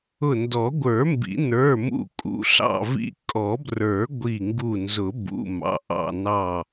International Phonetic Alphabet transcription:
ʊ˧˩ndɔ˨˩˦ɡʷə˞˨˩˦mbḭ˨˩˦ nə˞˩˧˩mṵ˧˩kʼṵ˩˧˩ ɬɑ̰˧˩vḭ˧˩ kʼɔ˨˩˦brə˞˨˩˦ ɡʷi˧˩ŋɡu˧˩nzʊ˨˩˦ bṵ˩˧˩ mɑ̰˩˧˩ʔɑ̰˧˩ nɑ˧˩

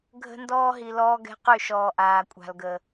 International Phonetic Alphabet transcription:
ɡʱə̤˦ndɔː˦ɦi˨ lɔː˦ɡɛ̤˦qy˦˨ʃɔː˨ ʔaː˨kʷʼa̤˨lɡə˨

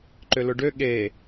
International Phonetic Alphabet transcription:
ǃʏlʊɖø ɠe

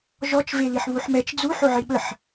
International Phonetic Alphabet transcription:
ʒɔt͡ʃ veliħβuħmɛt͡ʃ d͡zu ħoʕiɓəħ

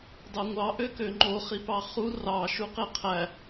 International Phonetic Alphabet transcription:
dɑŋʷɑ ʔøkøŋ͡ǃo χipɑχu rɑ ʃuqeqʰæ

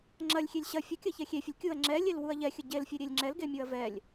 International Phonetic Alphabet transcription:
ŋ͡ǁɐlʲxʲelʲ ɕɐ fʲɐkʲɐçɛ xʲefʲəlʲ kʲuɐ̯ ŋ͡ǁɛlʲelwuɐ̯ ʎɛxʲə ɟelfʲeɾʲelʲ ŋ͡ǁɛlɡemʲuɐ̯ vɛlʲ

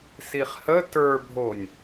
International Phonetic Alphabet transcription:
siχhə tə˞bʱonʲ

